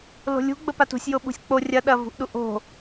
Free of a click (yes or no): yes